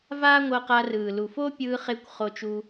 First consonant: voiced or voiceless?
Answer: voiced